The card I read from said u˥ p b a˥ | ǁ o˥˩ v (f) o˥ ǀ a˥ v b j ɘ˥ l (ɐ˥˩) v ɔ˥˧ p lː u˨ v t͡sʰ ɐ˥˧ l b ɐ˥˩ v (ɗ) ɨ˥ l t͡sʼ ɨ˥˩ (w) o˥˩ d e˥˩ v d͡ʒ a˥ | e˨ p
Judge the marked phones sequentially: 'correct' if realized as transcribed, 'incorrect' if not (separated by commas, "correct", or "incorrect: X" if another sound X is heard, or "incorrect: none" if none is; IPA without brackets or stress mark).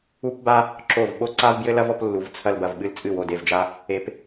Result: incorrect: ɓ, incorrect: ɐ˥, incorrect: ɓ, correct